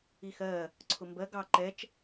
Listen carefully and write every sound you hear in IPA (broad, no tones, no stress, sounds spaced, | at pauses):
i x ɜ | ǀʰ ʊ m b ɜ ɡ ɑ ǃ ɛ t͡ʃ